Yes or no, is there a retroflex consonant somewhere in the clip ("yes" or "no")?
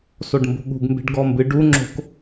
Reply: yes